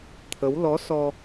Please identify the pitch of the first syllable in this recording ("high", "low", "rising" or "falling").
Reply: rising